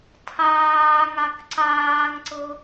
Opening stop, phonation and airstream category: aspirated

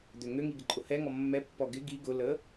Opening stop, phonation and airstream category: plain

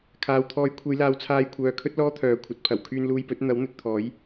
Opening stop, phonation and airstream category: aspirated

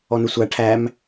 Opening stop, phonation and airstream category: aspirated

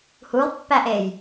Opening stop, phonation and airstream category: plain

